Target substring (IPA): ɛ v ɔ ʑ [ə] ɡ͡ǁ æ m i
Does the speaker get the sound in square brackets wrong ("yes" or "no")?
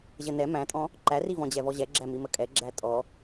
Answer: yes